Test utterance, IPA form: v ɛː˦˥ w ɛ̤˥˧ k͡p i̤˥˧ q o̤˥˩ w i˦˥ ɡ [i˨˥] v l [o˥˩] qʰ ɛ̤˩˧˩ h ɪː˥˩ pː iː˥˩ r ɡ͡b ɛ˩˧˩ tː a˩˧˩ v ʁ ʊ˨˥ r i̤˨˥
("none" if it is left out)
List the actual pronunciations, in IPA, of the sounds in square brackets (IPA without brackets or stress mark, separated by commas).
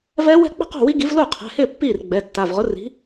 i˨˥, o˥˩